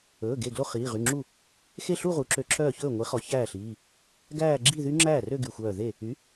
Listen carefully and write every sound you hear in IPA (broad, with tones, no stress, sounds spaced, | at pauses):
ɵː˩˧˩ ɡ e˧˩ ɡ l o˥˧ χ iː˩˧˩ ʁ y˩˧˩ ŋ͡ǁ u˥˩ | x e˥˩ ɬ u˥˧ ʁ u˩˥ ǁ ø˧˩ ǁʰ œː˥˩ ç ɵː˥˩ ŋʷ i˩˥ χ ɔ˩˥ ç æː˥˩ ɬ iː˩˧˩ | ɡ æː˥˧ ɡ͡ǁ i˥˧ ð y˦˥ ŋ͡ǁ æː˥˩ r ø˥˧ ɡ y˧˩ xʷ œː˧˩ ð e˥˩ | y˩˥